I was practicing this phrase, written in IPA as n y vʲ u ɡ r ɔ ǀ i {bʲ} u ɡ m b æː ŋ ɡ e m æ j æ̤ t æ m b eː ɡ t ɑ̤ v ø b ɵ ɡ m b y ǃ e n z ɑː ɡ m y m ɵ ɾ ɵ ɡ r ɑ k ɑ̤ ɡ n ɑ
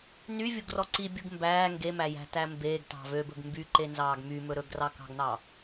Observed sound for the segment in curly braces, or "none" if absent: bʲ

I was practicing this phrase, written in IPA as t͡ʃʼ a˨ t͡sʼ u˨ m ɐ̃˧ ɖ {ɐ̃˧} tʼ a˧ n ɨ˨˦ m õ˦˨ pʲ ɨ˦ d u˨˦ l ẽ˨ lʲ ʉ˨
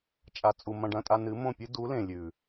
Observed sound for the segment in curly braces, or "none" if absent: ɐ̃˧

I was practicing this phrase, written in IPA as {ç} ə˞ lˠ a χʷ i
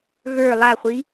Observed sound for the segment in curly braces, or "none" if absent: ɣ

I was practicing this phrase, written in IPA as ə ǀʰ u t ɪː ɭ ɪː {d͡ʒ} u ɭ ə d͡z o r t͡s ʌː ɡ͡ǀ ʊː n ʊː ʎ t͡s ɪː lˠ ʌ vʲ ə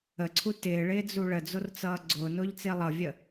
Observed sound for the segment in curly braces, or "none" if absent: d͡z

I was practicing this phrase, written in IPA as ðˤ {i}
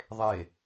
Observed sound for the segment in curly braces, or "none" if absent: e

